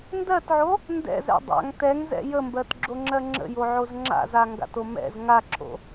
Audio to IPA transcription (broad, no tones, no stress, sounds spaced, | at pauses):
n d ɜ t ʕ o | n d ɛ̰ z ɛ̰ dˤ a̰ ŋ t ɛ ŋ z ɛ̰ j ə m b ɜ t ɡ͡ǁ o ŋ͡ǁ ɜ ŋ͡ǁ ə̰ j o ʕ o z ŋ͡ǁ a̰ z a ŋ ɡ a̰ t o m ɛ̰ z ŋ a ǁʰ o̰